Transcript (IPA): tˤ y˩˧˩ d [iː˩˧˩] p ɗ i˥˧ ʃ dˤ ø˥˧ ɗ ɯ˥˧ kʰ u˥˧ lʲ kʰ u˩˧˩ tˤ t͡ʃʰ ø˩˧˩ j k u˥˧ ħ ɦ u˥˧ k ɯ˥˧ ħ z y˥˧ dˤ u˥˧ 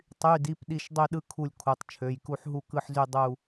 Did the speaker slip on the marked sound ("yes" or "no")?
yes